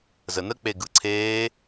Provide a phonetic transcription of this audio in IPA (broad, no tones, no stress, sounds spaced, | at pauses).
z ə n ə k͡p e ɡ ɯ ǀʰ eː